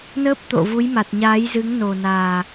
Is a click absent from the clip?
yes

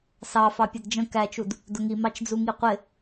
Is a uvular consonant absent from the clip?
no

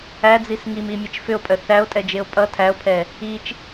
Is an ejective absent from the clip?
no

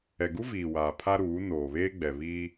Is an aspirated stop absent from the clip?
no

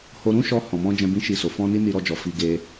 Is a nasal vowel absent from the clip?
no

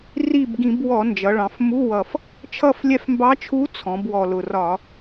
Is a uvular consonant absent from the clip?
yes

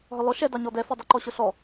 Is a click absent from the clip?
no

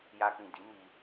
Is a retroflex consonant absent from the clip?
yes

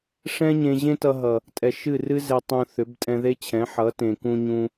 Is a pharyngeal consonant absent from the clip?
no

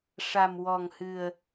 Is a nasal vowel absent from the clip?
yes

